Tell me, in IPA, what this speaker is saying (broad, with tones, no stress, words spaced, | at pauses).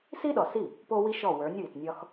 si˥ɗɔ˨si˥˩ | po˥wi˥ʃɔ˥˩ wə˞˨˥nʲ wi˨tnʲɒ˥x